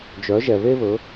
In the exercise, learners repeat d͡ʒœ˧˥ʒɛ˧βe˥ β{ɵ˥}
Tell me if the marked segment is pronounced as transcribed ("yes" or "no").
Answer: no